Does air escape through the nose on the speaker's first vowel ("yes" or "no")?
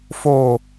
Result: no